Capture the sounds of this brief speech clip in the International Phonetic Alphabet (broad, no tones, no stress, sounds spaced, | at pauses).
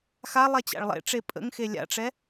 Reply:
x a lˠ ɛ t͡ɕ a̰ ɭ lˠ ḛ ʈ͡ʂ e pʼ ə̰ ŋ x e lʲ a̰ ʈ͡ʂ ɛ